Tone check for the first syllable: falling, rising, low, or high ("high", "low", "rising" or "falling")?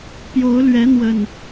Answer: rising